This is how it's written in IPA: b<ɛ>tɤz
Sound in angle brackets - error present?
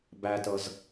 yes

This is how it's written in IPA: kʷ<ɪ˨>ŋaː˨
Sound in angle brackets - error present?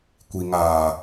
yes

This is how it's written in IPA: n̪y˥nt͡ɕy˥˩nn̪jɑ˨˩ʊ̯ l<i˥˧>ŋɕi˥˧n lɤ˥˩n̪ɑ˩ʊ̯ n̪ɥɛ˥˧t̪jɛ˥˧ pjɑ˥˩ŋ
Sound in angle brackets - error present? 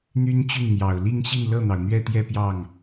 no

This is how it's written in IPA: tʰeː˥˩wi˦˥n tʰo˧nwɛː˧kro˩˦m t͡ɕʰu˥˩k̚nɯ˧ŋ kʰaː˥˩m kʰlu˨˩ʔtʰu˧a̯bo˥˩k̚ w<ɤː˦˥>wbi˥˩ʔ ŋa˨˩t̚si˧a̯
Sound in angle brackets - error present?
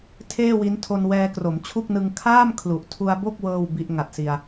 yes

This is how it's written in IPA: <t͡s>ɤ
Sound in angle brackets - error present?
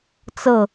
no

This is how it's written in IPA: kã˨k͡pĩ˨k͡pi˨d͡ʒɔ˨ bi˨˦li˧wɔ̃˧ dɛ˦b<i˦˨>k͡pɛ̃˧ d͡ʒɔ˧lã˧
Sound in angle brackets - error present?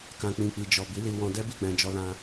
no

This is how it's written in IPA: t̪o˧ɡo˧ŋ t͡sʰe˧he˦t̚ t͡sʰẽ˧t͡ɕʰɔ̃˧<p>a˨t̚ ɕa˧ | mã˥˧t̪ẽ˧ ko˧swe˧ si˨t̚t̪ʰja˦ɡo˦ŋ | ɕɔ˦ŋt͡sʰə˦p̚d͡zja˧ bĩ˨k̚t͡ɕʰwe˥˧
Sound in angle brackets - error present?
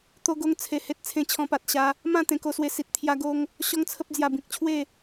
no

